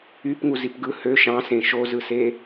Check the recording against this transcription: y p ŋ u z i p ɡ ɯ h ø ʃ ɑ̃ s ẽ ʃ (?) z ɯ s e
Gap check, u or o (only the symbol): o